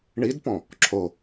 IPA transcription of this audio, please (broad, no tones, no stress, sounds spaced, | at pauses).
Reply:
ɳ i d p ɔ̃ | ǁʰ o